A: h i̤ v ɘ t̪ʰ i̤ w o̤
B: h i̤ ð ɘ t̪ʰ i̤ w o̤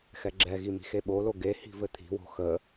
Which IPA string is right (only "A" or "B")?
A